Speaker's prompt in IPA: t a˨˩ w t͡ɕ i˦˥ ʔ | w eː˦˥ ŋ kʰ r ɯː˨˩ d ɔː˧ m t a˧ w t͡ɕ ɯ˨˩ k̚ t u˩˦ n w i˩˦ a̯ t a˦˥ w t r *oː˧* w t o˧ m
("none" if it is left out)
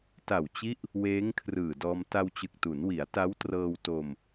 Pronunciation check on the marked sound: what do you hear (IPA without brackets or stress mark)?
ɤː˧